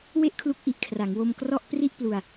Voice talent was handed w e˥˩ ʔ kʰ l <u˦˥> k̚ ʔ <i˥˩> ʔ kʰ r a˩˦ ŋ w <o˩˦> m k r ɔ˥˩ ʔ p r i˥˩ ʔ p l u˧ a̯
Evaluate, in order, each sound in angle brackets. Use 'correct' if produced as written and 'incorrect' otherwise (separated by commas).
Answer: correct, incorrect, incorrect